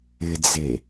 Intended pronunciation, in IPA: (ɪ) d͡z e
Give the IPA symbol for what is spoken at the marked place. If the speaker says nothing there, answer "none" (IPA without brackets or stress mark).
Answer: ɪ